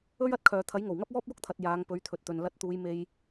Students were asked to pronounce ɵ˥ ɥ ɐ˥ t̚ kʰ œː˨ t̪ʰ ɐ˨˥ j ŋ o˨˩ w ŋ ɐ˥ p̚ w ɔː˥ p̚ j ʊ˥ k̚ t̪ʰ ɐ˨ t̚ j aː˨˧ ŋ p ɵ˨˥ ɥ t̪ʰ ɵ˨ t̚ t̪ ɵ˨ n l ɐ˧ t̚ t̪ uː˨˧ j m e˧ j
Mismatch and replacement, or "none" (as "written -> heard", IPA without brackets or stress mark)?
none